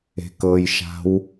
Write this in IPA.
e̤kɤjʃa̤w

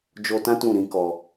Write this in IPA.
d͡ʒo˧tã˦ tũ˦˨ɾĩ˧kɔ˧

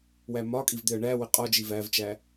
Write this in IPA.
wæmɒkʼiv d̪ɪə̯ɳæwɪ qʼɒd͡ʒi vævt͡ʃæ

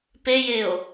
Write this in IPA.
pejeo̯

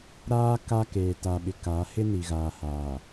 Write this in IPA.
ɾaː˦ ka˦keː˨ta˨ɓɪ˨ ka˨˦ hɪ˦ni˨ɣaː˨haː˨

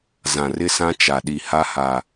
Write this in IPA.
zã˨rɪ˦sã˦ t͡ʃa˨ɗi˨ ha˦ha˨

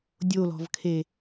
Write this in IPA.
dʲolɔ̤vkʰe

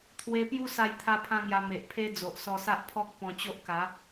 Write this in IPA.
t̪ʰwe˧pju˦ sa˥˧jt̪ʰa˦pʰã˦ŋja˧ me˨ʔpʰe˦d͡zo˨ʔ sɔ˧sa˦ʔpʰɔ˦k̚ pɔ̃˧t͡ɕo˦ʔka˨˦

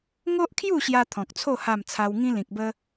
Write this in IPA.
ŋo˦ʔkʰju˥˧ɕja˧ t̪ʰɔ̃˨k̚t͡sʰo˥˧ ha˥˧m t͡sʰa˧wŋĩ˦ lĩ˨k̚bə˦

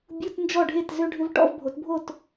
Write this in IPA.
bʲu˧˥˧t nd͡ʒɔ˥˨ɖʱe˥˨t zø˧ɖʱʏ˧v ʈɔ̰˧˥˧vbʱo˩˧tbʱo˥˨t

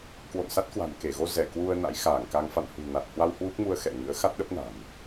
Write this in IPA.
kwo̰˧˨nsa˦˥t̚kwa̤˨˩n ke˧˩ɣo˧zɛ˧˩ kwu˧ə̯ na̰˧˥jxaː˧˩ŋka˧ŋ fa̰˧˨nhṳ˨˩ na˨˩t̚ hwa˧w hwu˦˥k̚mu˧ə̯ xɛ̰˧˨ ŋɨ̰˧˥ə̯ xa˦˥t̚ɗə˦˥p̚na̤˨˩m

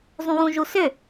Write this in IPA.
zˤũwũʒusʏ

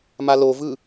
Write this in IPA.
malovɯ

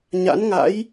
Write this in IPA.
ɲa̰˧˥nŋa̰˧˥j

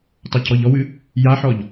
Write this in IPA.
tˤacʰɔʎɔwɨ | jaħɔʎ

